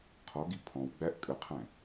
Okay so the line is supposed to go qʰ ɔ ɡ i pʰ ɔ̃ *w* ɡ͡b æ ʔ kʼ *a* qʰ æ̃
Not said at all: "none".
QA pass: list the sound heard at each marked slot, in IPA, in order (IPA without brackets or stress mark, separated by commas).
w, ə